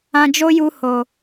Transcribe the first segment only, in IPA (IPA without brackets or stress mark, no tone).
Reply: ã